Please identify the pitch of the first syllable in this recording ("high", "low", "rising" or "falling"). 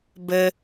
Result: high